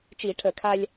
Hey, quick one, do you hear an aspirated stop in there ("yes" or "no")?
yes